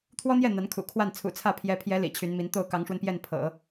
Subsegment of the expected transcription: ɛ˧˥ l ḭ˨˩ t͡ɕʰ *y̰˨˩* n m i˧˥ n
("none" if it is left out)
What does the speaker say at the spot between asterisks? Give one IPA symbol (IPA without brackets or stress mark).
y˧˥